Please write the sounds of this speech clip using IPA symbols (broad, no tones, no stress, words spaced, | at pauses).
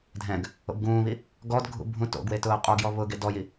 dʱɛ̃ɡ | o̰bɡũːβi | ɡɔdɡʱṵ bʱũto̰ɡwe tʊːqʼoɡjɔ βʊɡ edɔji